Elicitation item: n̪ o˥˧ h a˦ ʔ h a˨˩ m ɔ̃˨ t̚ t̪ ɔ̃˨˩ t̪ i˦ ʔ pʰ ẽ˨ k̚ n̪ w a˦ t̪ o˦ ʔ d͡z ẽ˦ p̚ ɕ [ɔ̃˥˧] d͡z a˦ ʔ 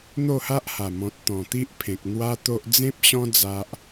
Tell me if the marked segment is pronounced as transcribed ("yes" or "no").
no